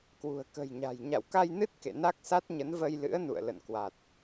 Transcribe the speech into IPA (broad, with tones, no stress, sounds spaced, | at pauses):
k w ṳ˨˩ ə̯ k ə̤˨˩ j ɲ a̤˨˩ j ɲ a̰˧˨ w k a˧ j n ɨ˦˥ t̚ k ḛ˧˨ n a˦˥ k̚ s a˦˥ t̚ ɲ ə˨˦ n v ə˧ j l ɨ̰˧˥ ə̯ n ṵ˧˨ ə̯ l ə̰˧˨ n k w a˨˩ t̚